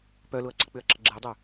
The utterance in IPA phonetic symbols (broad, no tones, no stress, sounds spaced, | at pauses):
p œ l ʊ ɐ̯ ǀ ɪ k͡p ʏ ɐ̯ ǁ ə ɡ͡ǁ ɪ ɐ̯ dˤ ʏ